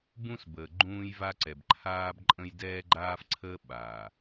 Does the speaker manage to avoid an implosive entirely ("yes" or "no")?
no